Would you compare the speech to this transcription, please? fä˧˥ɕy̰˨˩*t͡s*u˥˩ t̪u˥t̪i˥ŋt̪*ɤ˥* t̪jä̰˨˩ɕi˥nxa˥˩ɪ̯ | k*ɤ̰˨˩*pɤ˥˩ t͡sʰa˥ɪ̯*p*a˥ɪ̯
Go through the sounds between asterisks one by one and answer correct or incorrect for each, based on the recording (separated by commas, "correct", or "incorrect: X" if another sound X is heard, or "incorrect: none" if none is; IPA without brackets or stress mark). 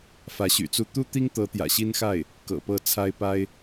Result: correct, incorrect: ɤ˧˥, correct, correct